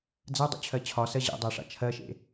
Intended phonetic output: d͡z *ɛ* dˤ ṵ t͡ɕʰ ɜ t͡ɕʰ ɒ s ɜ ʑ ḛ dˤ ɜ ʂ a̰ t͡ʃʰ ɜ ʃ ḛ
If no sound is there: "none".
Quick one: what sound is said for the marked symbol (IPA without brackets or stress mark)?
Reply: ɜ